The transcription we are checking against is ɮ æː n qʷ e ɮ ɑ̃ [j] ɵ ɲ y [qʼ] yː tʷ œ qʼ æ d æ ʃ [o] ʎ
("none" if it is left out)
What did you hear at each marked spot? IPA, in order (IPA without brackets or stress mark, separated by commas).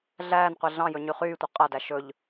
j, χ, ɵ